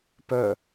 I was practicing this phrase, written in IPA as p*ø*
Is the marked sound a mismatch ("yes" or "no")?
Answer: yes